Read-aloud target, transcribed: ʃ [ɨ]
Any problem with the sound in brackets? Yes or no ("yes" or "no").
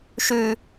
yes